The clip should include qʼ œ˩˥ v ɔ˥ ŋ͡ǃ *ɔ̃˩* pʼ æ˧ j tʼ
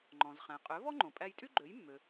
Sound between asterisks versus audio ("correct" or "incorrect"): incorrect